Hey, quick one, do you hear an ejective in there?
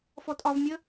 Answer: yes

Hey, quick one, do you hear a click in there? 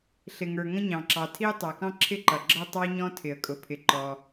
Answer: yes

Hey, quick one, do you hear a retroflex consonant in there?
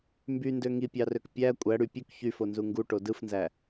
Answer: yes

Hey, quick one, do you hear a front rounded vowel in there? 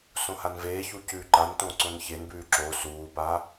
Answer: no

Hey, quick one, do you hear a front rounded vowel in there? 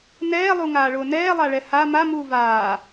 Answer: no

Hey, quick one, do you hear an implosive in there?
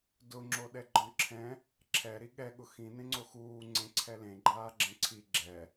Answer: yes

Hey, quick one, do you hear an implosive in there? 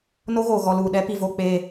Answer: yes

